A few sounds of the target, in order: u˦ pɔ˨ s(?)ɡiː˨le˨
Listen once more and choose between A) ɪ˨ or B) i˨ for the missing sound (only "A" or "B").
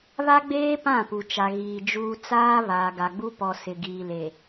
A